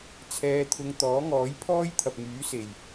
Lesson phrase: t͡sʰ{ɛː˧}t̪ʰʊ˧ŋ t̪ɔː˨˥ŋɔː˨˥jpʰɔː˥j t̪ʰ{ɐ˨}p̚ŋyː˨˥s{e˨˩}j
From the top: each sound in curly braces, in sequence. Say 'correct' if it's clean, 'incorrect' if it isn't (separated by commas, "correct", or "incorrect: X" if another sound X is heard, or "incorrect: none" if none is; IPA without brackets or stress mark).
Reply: correct, correct, correct